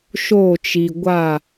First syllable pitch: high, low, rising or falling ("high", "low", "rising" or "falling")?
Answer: falling